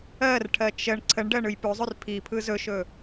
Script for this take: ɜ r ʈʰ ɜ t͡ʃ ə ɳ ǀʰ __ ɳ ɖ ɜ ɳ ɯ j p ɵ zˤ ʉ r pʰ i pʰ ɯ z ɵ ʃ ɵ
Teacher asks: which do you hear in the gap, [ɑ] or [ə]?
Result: ə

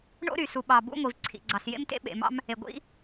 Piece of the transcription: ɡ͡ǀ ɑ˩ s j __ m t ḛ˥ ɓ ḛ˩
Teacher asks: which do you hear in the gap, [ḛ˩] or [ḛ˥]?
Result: ḛ˥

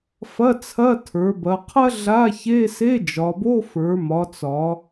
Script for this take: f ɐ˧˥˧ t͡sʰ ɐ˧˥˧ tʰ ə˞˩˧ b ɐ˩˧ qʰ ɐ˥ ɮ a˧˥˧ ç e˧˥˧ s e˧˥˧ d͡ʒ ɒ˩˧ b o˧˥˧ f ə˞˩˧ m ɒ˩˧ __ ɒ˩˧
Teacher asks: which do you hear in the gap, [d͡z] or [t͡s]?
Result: t͡s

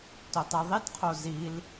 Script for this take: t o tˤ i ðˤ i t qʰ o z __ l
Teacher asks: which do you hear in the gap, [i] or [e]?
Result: i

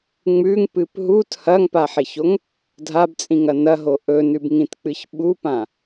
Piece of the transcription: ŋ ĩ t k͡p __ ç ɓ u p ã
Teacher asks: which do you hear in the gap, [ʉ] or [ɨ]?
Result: ɨ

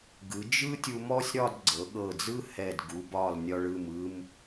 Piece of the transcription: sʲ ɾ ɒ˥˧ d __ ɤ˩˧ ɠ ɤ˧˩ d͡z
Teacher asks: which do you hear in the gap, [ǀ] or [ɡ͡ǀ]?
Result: ɡ͡ǀ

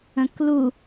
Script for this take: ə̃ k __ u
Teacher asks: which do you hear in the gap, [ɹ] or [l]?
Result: l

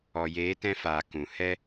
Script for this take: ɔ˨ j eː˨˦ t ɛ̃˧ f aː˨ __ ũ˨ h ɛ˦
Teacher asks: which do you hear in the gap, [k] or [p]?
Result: k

